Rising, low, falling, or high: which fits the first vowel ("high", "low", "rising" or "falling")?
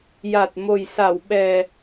low